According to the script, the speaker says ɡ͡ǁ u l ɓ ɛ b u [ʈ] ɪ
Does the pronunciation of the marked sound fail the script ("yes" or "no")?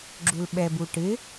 no